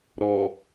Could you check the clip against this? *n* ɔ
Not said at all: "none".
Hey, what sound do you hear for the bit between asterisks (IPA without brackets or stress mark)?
ɾ